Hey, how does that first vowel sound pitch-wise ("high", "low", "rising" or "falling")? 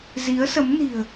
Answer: rising